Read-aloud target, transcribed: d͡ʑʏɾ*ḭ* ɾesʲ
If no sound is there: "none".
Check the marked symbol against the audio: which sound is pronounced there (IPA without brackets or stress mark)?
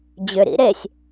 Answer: ḭ